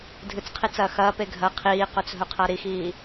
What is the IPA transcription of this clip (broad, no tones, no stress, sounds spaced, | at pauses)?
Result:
dʱ ɨ t͡s qʰ i t͡s ɐː x ɐː p e ɡʱ ɐ qʰ iː q ɵ t͡s ɦ ɵ qʰ a ɾ i x iː